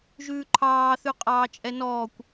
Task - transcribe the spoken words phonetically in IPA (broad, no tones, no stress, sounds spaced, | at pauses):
ʒ ʉː ǃʰ ɑː θ ʉ qʼ ɑː t͡ʃʼ ɛ n ɔː kʷ